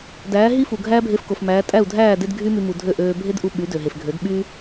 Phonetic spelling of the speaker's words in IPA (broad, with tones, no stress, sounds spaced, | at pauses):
d æː˩˥ ɦ i˥ f u˩ ɡʱ æː˥ bʱ e˧ f k o˩ f m æː˩˥ tʼ æ˥˩ u̯ dʱ æː˥˩ d e˥ d ɡʱ y˥ m y˧ m u˩ dʱ ø˥˩ ʔ øː˧ bʱ e˥ d ʔ u˧ ɓ y˩˥ d ø˩ ɦ e˩ f ɡʱ ø˩˥ d ɓ y˥